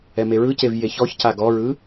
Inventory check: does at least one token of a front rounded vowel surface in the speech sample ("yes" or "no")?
no